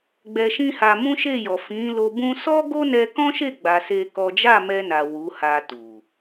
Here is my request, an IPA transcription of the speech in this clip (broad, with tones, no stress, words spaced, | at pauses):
ɡ͡bɛ˧ʃĩ˦ha˧ mũ˦ʃe˦˨jɔ˨ fĩ˨˦ lo˧ bũ˧sɔ˦ ɡo˦nɛ˧kɔ̃˦ʃe˦˨ ɡ͡ba˧se˦kɔ˦ d͡ʒa˦˨mɛ˧na˨ wu˨˦ha˧tu˨